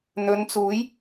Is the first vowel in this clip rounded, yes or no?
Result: yes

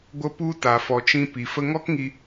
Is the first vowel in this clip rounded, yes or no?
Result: no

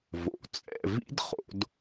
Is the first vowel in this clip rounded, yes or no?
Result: yes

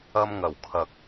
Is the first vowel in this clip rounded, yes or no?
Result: no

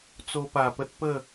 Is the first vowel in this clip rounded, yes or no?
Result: yes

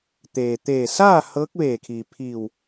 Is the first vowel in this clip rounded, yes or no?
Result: no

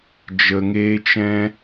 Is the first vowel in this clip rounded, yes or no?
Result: no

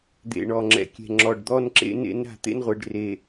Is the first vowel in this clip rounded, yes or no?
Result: no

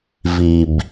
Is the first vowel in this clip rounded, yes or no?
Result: no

